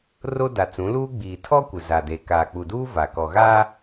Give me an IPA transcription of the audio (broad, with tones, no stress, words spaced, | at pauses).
ro˦da˨t͡sũ˨˦ luː˦ɡ͡biː˨ tʰɔ˦ kʷɪ˨ za˨de˨ kaː˨k͡pu˨duː˦ va˨kɔ˨ɣaː˦